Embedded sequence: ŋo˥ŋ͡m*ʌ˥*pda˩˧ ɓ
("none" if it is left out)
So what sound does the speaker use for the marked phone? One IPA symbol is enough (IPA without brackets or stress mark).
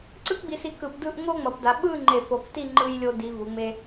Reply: ʌ˩˧